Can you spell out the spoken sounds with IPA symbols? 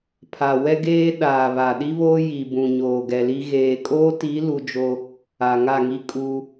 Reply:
pʰ a˨ w ɛ˦ ɡ eː˦ ɗ aː˨ β a˨ ɗ i˦ β oː˦ j i˨ b ũ˨ ɲ oː˨ ɡ ɛ˨ l i˦ ɣ eː˨ kʼ oː˦ t i˨˦ l u˦ d͡ʒ o˦ | a˨ ŋ a˦˨ ŋ i˦ kʼ u˦

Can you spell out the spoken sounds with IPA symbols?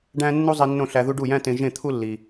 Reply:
ɖ æ̃˥ nː u˥ zˤ i˧ nː õ˥˩ ɬ æ˧ ð u˥ ɖ u˥˩ j æ̃˥ t ẽ˧ ʒ ẽ˥˩ t̪ʰ u˥ lː i˩

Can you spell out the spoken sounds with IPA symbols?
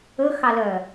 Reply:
ɵ x ɑ l œ

